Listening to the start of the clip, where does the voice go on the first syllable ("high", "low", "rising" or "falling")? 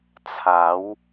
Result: rising